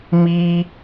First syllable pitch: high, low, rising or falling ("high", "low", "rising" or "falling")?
high